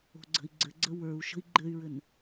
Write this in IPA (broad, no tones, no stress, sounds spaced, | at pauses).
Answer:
o̤ ɡ͡ǀ ə̤ i̯ ɡ͡ǀ ɘ ɡ͡ǀ ə w ə˞ u̯ ʃ ə̤ i̯ ɡ͡ǃ ɘ y̯ ɹ ɘ n